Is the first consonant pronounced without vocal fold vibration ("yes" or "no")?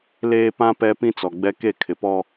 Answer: no